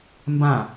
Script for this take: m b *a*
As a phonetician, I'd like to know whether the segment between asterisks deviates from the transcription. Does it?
yes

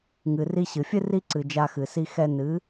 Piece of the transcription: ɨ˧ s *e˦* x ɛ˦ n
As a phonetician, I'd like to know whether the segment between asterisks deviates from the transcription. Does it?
yes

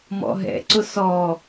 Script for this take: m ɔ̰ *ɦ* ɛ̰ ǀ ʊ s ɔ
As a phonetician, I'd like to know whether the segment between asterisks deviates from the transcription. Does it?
no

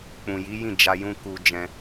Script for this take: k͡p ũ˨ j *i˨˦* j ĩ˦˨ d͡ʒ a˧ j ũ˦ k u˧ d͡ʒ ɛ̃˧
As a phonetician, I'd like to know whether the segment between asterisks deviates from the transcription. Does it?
no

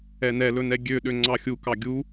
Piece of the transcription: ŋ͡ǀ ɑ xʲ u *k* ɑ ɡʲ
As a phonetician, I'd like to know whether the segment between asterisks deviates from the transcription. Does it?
no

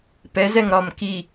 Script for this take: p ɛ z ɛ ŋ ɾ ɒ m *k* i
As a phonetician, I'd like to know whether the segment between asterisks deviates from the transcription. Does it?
no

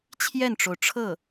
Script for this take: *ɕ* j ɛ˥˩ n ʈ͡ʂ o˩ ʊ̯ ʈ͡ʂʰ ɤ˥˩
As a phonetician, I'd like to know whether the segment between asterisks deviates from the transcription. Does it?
yes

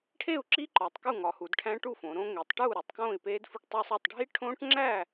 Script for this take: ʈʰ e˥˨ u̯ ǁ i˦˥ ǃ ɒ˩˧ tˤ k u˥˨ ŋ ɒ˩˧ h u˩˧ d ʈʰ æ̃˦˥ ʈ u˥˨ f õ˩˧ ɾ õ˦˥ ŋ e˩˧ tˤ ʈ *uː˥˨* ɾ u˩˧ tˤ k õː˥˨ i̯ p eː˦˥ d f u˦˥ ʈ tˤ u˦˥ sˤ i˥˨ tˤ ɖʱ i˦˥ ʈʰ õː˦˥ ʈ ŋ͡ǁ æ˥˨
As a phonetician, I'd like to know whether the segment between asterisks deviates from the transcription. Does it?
no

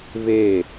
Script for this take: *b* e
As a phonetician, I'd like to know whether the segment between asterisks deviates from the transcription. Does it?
yes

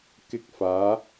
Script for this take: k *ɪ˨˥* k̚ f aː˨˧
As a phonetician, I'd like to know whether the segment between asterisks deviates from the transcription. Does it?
no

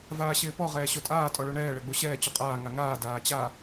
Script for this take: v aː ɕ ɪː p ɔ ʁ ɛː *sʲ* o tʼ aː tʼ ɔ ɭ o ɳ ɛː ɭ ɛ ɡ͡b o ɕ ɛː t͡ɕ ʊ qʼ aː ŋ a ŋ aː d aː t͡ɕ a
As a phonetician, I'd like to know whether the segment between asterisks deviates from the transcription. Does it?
yes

